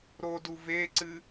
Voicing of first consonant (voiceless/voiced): voiced